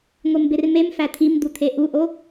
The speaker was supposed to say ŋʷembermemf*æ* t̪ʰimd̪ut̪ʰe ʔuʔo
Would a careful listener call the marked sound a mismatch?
no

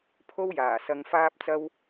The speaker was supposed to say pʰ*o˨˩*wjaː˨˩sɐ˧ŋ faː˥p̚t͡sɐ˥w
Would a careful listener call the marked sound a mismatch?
yes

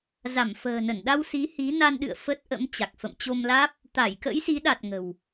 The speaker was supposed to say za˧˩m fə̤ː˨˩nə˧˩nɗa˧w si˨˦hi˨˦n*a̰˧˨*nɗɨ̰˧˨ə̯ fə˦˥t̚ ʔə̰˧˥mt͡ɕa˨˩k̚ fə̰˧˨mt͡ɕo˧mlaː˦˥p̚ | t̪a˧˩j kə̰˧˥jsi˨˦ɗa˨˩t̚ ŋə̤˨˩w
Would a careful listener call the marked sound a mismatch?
yes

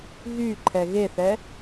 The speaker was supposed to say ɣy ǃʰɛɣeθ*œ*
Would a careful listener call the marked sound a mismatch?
yes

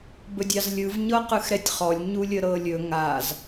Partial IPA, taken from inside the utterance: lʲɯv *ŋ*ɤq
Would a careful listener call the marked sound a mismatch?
yes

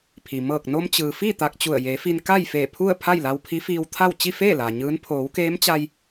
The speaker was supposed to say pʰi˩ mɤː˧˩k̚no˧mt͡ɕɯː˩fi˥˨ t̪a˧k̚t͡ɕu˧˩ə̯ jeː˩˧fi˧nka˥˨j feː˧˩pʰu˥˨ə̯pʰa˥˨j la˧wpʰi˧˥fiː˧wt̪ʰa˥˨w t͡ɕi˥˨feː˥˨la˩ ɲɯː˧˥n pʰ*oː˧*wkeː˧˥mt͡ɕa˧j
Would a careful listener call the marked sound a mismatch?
yes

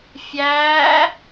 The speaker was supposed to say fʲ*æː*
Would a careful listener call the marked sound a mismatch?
no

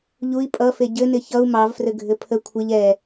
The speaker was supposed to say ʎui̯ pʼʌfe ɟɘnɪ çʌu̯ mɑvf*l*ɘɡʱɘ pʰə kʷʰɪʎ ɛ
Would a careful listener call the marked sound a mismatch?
yes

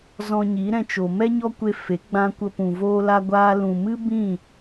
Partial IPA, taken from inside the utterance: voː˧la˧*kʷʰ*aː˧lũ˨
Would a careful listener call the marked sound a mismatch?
yes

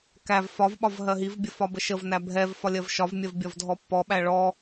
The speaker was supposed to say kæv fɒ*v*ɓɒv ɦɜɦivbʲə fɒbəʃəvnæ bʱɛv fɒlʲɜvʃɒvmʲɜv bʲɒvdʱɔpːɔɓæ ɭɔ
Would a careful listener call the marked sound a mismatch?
no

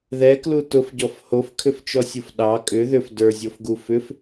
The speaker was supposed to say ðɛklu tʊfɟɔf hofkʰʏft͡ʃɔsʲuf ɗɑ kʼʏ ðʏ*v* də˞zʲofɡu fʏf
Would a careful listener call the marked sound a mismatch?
yes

